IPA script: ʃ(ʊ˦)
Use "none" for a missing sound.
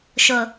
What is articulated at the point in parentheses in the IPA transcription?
ʊ˨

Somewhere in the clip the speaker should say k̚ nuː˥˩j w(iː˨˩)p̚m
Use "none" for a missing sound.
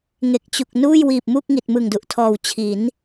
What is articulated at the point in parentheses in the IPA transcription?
iː˨˩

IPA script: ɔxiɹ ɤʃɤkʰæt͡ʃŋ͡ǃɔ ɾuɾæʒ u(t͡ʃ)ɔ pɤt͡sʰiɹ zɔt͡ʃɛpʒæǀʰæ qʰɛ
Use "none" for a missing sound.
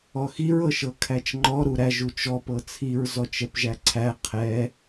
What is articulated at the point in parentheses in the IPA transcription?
t͡ʃ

